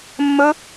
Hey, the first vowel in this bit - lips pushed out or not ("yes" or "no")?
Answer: yes